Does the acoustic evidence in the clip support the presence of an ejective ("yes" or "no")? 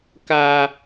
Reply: no